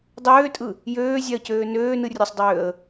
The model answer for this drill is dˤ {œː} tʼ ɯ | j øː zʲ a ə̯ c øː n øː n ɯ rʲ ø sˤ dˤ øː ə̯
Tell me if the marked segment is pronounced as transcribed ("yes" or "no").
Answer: no